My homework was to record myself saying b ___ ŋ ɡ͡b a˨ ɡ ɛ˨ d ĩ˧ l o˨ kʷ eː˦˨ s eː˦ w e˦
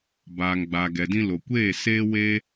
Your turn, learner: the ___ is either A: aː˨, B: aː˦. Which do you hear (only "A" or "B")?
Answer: A